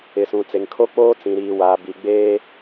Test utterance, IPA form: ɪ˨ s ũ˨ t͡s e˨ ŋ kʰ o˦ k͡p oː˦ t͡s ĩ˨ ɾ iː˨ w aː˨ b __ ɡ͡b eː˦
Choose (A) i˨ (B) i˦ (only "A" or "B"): A